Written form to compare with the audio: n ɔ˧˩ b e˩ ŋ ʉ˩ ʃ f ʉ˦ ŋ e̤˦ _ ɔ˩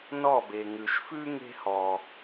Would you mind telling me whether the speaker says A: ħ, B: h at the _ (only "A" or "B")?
B